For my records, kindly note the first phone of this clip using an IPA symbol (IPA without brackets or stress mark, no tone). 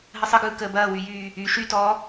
ɦ